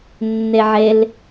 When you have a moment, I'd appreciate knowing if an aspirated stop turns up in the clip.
no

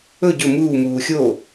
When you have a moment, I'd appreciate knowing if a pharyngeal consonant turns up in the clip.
no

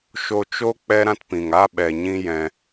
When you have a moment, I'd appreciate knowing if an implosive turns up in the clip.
yes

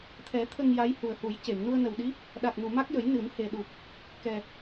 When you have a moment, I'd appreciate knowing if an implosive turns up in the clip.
yes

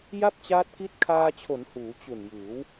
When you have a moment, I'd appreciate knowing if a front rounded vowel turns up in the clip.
no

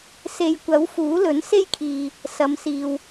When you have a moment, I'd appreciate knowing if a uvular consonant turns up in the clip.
no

